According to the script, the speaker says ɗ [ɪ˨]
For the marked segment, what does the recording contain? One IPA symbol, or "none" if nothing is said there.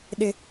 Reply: ɪ˦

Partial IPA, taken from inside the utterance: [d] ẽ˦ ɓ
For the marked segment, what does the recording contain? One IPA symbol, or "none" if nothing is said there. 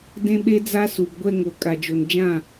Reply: d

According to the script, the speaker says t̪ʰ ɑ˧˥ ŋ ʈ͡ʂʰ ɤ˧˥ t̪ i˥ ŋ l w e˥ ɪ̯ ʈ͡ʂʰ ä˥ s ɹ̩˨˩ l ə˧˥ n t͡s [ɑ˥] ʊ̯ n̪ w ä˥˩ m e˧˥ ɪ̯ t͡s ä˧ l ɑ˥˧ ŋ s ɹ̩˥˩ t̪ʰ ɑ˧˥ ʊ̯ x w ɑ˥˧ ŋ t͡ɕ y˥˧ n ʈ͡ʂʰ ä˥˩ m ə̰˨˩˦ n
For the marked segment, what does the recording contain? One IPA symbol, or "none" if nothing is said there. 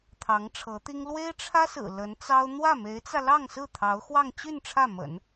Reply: ɑ˥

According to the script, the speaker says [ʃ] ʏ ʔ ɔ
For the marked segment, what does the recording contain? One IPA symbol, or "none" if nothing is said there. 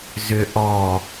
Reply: z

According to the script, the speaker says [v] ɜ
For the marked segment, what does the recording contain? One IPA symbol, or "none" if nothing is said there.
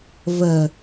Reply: v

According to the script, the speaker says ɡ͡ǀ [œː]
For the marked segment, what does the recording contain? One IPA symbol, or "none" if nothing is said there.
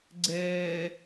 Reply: ɛː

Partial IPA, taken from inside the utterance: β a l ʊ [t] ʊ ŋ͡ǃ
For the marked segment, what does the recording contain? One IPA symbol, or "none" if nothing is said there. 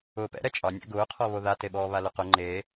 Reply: q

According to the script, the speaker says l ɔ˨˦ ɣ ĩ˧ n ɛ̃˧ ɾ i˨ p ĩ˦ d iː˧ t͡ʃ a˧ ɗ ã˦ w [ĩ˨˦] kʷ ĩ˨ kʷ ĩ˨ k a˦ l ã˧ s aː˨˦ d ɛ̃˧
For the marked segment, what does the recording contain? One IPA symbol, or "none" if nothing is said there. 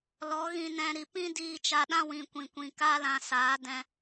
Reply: ĩ˨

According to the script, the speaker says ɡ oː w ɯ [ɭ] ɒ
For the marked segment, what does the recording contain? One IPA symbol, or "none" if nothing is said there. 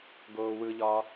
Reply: ʎ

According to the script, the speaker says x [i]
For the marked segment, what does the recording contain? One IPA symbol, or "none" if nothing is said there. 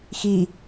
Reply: i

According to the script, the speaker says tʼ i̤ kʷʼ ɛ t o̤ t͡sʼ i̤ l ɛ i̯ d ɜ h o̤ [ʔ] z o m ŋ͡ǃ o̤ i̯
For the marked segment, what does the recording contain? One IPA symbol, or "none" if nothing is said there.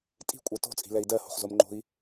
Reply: χ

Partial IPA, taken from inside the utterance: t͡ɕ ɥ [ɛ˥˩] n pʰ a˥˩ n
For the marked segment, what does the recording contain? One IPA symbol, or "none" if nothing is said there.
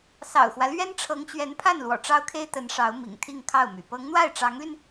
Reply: ɛ˧˥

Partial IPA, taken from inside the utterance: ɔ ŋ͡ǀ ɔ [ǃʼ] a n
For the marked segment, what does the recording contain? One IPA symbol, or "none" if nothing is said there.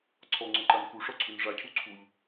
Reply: ǃ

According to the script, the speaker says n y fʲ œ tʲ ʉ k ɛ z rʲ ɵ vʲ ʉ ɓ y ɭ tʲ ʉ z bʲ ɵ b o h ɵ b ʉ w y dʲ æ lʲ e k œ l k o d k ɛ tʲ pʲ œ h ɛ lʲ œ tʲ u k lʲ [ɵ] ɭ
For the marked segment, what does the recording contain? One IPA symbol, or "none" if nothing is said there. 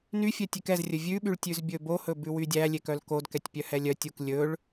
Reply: ɵ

